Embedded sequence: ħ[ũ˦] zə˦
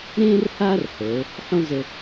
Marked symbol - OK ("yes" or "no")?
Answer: no